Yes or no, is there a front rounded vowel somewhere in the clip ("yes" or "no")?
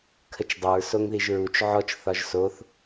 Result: yes